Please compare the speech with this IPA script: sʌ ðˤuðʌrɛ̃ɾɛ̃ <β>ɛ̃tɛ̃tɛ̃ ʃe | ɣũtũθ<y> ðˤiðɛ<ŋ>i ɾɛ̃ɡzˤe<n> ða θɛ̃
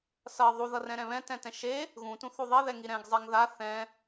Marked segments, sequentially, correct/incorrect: correct, incorrect, correct, incorrect

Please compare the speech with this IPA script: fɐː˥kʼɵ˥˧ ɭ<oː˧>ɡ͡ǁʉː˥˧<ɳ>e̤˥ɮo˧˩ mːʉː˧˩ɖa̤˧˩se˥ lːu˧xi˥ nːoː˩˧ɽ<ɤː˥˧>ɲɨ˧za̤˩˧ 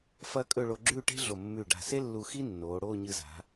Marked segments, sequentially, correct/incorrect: incorrect, incorrect, incorrect

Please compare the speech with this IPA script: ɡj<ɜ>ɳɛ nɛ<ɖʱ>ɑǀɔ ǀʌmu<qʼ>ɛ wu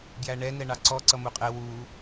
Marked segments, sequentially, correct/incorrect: incorrect, incorrect, correct

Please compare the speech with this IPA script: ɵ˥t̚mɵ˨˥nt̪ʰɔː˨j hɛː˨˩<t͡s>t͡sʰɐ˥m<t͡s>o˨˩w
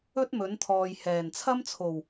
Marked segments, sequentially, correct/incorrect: incorrect, incorrect

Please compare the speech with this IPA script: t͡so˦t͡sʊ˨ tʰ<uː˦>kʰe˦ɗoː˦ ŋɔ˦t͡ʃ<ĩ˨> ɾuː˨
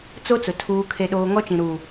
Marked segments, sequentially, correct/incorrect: correct, correct

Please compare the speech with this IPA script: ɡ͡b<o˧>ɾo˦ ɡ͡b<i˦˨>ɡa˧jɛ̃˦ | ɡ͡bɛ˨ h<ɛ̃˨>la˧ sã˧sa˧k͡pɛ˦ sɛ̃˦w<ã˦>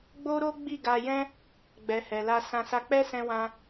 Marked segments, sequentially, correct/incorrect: incorrect, correct, incorrect, correct

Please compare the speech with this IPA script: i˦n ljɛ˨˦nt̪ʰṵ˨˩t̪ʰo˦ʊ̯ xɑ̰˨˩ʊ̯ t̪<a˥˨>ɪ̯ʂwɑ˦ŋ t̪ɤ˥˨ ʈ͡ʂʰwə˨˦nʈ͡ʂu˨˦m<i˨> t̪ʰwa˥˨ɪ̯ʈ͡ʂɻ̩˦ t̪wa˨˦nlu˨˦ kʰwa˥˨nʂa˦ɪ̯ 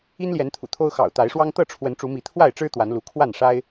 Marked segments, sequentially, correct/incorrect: incorrect, incorrect

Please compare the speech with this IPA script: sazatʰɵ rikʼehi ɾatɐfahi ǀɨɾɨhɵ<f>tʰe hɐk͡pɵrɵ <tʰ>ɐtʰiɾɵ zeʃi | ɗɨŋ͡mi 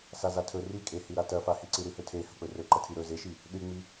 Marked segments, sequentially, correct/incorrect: incorrect, incorrect

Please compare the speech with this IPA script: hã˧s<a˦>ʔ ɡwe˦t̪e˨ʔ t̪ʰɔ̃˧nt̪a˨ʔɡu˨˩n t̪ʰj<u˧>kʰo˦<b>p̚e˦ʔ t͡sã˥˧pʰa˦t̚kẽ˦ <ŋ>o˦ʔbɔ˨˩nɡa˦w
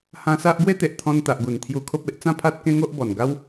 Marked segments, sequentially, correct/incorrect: correct, correct, incorrect, correct

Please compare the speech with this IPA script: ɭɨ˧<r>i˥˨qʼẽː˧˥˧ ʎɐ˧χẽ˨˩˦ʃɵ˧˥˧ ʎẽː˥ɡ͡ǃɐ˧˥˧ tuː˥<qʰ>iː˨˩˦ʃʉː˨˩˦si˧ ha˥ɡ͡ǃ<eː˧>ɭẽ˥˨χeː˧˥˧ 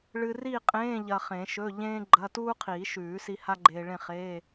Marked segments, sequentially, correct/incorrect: correct, correct, correct

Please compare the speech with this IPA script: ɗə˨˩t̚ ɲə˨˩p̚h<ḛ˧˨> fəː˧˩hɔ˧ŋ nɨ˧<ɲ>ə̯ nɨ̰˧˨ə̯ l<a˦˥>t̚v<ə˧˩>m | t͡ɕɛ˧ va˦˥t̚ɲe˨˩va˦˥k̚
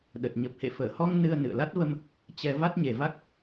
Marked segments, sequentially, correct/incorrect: correct, incorrect, correct, incorrect

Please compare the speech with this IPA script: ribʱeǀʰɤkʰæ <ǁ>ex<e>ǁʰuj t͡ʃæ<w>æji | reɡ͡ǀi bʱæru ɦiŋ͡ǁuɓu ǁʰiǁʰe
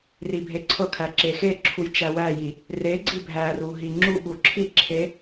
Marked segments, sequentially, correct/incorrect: correct, correct, correct

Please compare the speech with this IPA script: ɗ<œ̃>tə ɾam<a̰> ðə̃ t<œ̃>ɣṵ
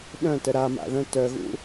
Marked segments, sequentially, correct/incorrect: correct, correct, incorrect

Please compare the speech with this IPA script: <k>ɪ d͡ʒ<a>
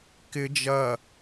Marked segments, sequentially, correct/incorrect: correct, incorrect

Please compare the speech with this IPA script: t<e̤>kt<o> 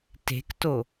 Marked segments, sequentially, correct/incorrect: correct, correct

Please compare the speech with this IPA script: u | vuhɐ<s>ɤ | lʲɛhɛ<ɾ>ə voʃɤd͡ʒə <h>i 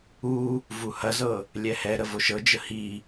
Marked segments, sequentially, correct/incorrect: incorrect, correct, correct

